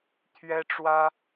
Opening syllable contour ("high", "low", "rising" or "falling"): high